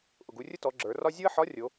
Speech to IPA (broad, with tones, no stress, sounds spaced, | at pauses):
ʔ ʊ˩ ɡ u˩˧ rʲ ʊ˥ t ɔ˩˧ ɡ͡ǁ ə˞˩˧ r ɒ˥ zʲ o˥ ə̯ ħ ɒ˧˥ rʲ o˩˧